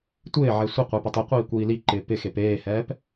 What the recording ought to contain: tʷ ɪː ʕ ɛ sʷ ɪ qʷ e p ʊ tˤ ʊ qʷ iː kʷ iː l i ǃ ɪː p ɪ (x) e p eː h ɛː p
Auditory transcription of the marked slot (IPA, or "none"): x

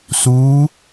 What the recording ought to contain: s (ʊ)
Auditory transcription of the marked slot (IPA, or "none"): u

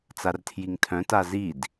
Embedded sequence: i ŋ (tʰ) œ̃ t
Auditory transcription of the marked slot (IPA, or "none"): tʰ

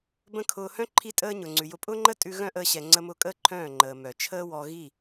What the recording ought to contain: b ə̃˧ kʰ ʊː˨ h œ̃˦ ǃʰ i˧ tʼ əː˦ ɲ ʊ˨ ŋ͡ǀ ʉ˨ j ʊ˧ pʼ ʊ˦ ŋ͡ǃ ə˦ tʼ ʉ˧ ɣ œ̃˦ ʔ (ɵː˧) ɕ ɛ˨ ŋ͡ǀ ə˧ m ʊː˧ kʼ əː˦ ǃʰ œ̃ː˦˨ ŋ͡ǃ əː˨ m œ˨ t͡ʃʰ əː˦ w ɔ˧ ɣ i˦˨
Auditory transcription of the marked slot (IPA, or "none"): əː˧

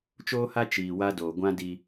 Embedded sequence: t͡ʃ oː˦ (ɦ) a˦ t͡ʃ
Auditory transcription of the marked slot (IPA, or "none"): h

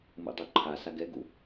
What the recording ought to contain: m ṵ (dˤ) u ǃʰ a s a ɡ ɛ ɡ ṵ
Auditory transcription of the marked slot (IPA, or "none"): dˤ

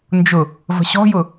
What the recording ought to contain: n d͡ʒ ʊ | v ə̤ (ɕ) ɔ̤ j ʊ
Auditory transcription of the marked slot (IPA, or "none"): ɕ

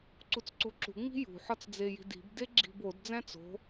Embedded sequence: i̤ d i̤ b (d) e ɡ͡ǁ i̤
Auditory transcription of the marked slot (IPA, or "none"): d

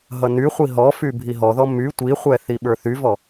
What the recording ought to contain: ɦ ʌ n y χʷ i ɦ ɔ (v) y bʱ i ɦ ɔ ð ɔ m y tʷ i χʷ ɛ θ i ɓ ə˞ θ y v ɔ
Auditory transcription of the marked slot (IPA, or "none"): f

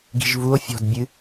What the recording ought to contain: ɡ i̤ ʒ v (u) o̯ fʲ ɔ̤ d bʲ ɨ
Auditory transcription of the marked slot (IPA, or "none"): u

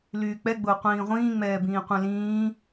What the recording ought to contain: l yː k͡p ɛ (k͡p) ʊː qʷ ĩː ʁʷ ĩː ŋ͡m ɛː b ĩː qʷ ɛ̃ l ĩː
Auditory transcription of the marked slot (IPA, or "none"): ɡ͡b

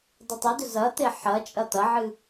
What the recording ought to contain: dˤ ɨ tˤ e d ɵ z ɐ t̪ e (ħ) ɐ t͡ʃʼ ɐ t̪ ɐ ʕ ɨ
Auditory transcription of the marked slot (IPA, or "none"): ħ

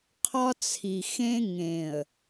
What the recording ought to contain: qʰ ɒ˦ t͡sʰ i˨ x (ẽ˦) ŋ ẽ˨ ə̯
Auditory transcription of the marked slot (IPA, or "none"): ẽ˦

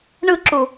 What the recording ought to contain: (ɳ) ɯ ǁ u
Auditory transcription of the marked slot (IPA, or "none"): ɳ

